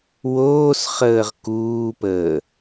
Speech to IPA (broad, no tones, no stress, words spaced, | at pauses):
woːsχəːʁ kuːpəː